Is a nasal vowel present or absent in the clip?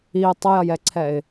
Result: absent